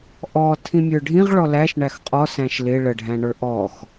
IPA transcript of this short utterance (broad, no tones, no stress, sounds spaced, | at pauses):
ʔ ɔ tʰ ĩ mʲ ə˞ ɖʱ ĩ ʁ ɭ ɔ l æ ʃ ɳ æ x qʼ ɔ s æ̃ ʃ l ɪ ɭ ə ɖʱ æ̃ ɳ ə˞ ʔ ɔ x